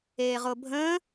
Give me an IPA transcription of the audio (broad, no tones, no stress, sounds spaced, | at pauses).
eː ʁ o bʱ ə̃